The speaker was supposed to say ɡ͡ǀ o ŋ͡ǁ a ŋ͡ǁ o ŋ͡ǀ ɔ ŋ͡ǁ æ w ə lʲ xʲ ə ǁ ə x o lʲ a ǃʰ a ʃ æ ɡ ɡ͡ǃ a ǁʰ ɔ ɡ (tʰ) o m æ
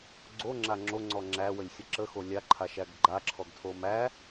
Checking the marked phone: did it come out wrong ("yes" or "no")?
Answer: no